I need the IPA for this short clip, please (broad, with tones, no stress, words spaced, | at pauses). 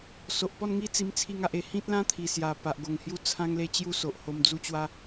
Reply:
so˨ʔpɔ˥˧nŋi˦ t͡si˧mt͡sʰi˧ŋ a˨ʔe˨˩ hĩ˦t̚ lã˦t̪ʰi˨˩sja˨˩ pa˨ʔɡo˨˩ŋhju˦ t͡sʰã˦ŋle˦t͡ɕju˦so˨ʔ ho˧md͡zu˦t͡ɕwa˦